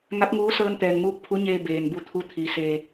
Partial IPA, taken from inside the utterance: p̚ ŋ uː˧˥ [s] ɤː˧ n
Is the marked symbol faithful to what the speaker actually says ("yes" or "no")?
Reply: yes